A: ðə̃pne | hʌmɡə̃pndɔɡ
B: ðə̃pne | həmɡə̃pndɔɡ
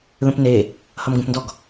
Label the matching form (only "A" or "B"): A